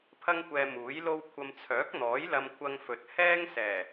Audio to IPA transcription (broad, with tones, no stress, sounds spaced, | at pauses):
pʰ ɐ˥ ŋ kʷ ɛː˧ m uː˨˥ j l o˥ w kʷʰ ɐ˧ m t͡sʰ œː˨˥ k̚ n̪ ɔː˨˥ j l ɐ˧ m kʷʰ ɐ˧ ŋ f ɵ˨ t̚ h ɛː˥ ŋ s ɛː˨˩